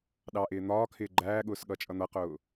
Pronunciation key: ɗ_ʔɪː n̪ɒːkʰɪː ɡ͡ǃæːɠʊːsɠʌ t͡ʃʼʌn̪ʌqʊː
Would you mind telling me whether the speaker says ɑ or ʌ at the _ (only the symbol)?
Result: ɑ